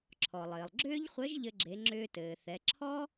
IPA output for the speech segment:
ǁʰ ɔ˩ lˠ ɘː˩ lˠ ɡ͡ǁ ʏː˥ ʎ χʷ ɘ˧˥ ʒ ʎ ɘ˧ ɡ͡ǁ e˩˧ ŋ͡ǁ ʏː˧ t ɘː˩ θ ɛ˩˧ ǁʰ ɔ˥

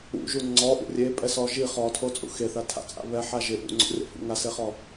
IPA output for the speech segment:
ṵ ʒ u ŋ͡ǀ ɔ ʔ ṵ rʲ e pʼ ɛ s ɔ ʒ i χ ɔ tʰ o t͡sʼ ṵ x e θ a tʰ a̰ t͡sʼ a̰ β ɛ ħ a ʒ ɪ ʔ ṵ ŋ͡ǀ o̰ rʲ a̰ f ṵ ŋ a s e χ ɔ

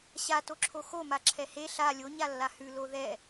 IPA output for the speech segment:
ɕ a t o ǁʰ o x o m a ǁʰ ɛ h e ɬ a lʲ o ɲ a lː a h ʉ l o ð ɛ

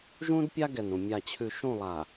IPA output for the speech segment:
ʒ ũ˦ d pʲ a˦ ɡ ɛ˨ n ũ˨ mʲ a˨ t͡ɕʰ ʉ˨ ʃ ũ˦˨ lˠ a˨

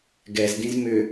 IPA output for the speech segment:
ɡ ɛ z d ĩ z m ʏ

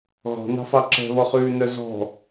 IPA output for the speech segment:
ɣ ɔ̤ n ɑ̤ f ɑ ǁ ɛ̤ β ɔ χ ʉː n œ z ɔ̤

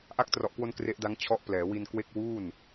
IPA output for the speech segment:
ʔ a˦˥ k̚ t r ɔ˨˩ ʔ k w o˧ n k r e˦˥ ʔ d a˦˥ ŋ t͡ɕʰ ɔ˦˥ ʔ p l ɛː˩˦ w i˧ n k w e˥˩ k̚ w uː˥˩ n

